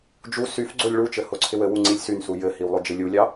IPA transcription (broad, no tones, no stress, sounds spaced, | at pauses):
d͡ʒ u s y f ɡ͡ǀ o lʲ ɭ u t͡ʃ ɘ h o ǀʰ ɪ w ɘ w u ŋ͡ǀ i lʲ s y n s u j ɘ h i w lˠ o d͡ʒ ɪ lʲ u lʲ ɑ